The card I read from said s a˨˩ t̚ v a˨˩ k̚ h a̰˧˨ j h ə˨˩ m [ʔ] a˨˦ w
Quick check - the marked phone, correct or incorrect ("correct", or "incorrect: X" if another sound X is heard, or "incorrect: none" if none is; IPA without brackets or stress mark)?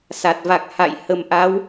correct